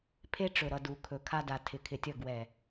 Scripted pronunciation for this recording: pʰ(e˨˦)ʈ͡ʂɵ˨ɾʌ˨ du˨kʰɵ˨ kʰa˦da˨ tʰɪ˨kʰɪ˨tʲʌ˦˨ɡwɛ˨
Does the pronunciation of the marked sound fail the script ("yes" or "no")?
yes